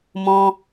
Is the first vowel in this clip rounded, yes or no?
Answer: yes